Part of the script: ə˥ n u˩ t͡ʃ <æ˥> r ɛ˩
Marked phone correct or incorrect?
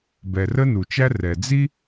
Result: correct